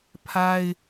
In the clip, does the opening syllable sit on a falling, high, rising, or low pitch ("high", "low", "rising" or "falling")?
high